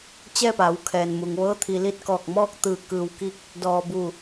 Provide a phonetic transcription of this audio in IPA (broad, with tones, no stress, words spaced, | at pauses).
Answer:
t͡ɕɛː˥˨pa˩˧wkʰɛː˩nmu˩ŋ ʋɤː˧˥t̪ʰi˩li˥˨t̚kɔː˧˩k̚ mɔː˥˨k̚t̪ɯː˧˩ kɯː˧wki˥˨k̚ | dɔː˧ bu˥˨